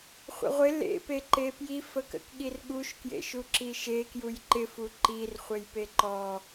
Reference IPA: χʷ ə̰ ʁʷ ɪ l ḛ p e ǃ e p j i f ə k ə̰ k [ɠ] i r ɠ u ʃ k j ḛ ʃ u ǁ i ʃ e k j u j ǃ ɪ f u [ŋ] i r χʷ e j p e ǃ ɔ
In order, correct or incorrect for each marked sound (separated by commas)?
correct, incorrect